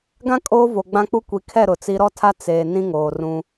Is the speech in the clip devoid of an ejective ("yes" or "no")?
no